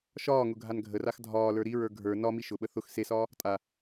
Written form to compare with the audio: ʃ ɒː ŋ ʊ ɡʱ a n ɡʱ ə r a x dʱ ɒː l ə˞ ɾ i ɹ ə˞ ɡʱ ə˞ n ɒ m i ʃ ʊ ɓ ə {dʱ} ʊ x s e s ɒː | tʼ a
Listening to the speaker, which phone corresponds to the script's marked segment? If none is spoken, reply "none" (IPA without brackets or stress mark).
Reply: θ